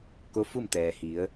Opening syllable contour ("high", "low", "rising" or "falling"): rising